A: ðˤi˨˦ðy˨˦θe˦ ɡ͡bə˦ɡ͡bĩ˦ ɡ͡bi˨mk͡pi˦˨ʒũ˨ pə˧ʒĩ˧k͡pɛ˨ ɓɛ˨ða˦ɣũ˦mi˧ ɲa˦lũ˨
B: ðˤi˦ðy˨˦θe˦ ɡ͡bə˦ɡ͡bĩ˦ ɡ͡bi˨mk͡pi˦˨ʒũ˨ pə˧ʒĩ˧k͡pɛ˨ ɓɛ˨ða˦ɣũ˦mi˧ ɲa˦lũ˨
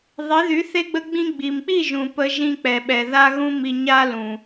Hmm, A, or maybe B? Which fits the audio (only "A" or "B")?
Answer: A